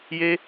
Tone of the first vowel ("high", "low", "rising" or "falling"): high